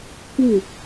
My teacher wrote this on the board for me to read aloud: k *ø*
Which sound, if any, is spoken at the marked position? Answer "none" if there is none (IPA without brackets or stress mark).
u